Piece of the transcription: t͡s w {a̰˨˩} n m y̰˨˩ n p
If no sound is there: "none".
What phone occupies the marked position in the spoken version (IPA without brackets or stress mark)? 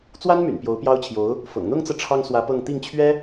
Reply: a˥